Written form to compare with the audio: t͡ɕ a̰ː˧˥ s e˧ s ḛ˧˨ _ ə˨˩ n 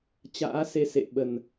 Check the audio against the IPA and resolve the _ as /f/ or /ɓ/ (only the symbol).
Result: ɓ